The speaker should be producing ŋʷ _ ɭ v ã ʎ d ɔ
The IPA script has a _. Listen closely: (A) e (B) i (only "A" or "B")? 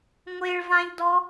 A